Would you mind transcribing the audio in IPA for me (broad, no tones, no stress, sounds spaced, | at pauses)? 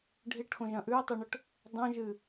ɖʱ i ʈ x õ ʒ ɐ̃ ʔ ʉ o̯ tˤ u ɳ ɵ ʈ | dˤ õ ʒ ɨ